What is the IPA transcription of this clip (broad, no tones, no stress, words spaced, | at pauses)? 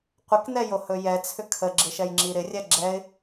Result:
qʷɪknɛjohɵ jɛt͡sʰʏ kʰəɡ͡ǁɪʃɛjŋ͡ǁi ɾɪrʲɛ ɡ͡ǁɛɪ̯